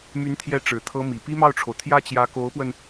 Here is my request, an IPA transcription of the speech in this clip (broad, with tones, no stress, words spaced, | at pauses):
my˧˥nt̪ʰjɛ˧˥ ʈ͡ʂɻ̩˨˩t̪ʰɤ˥mi˨˩ pi˥mɑ˥˩ʊ̯ʈ͡ʂʰo˩ʊ̯ t̪ʰjä˥˩t͡ɕjä˧˥ko˧˥ʊ̯pwə˧n